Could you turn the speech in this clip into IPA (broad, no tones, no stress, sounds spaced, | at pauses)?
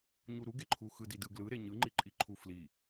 ɲ u ɾ u ɡ e ǃʰ u x ɯ d i d ɯ ɡ l ɯ ɾ e ɲ ɯ ŋ͡ǃ i ǃʼ i ǃʰ u f l i